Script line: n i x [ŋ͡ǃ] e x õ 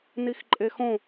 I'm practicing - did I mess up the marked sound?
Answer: yes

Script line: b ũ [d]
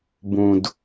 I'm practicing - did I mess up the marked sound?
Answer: no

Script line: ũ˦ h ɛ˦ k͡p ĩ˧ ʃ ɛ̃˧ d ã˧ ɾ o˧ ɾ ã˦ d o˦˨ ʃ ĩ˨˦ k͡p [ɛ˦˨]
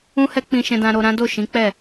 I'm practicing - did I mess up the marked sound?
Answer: no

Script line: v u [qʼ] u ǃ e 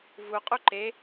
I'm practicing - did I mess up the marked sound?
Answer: no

